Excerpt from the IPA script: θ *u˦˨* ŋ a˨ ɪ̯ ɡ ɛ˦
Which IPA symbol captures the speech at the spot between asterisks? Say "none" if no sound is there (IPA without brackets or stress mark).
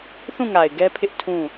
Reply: ũ˦˨